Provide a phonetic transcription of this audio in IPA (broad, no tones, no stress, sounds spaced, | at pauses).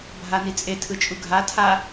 bʱ a n i t͡sʼ e tʰ ɯ t͡ʃʼ u ɡʱ a tʰ a